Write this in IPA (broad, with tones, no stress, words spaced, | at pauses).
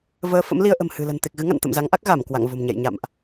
vəː˨˦fə̰˧˥m li˧ə̯ʔə̤˨˩m hɨ̤˨˩lə̤˨˩n t̪e˨˩k̚ɣɨ˨˦ŋa̰˧˨n t̪ə̰˧˨mza˨˦ŋʔa˦˥k̚ ɣa˧˩m kwa̰˧˨ŋvo̤˨˩mɲɛ̰˧˨j ɲa̰˧˨mʔ